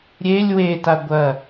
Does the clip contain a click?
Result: no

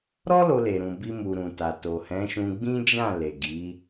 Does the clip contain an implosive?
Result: no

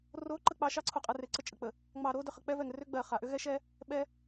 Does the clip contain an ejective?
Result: yes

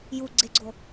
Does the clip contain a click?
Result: yes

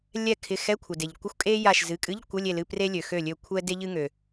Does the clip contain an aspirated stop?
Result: yes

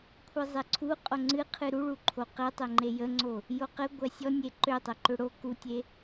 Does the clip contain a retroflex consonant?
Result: yes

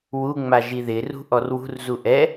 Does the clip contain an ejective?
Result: no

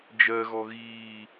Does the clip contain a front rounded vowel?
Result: no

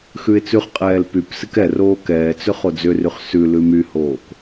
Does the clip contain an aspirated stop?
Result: no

